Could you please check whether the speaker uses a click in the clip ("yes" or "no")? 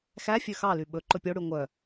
yes